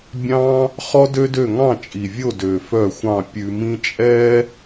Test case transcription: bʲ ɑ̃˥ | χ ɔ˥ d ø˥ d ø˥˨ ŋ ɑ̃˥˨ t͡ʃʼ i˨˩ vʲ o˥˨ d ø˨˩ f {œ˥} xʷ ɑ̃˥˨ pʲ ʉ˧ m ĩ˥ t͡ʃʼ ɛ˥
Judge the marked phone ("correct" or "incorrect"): incorrect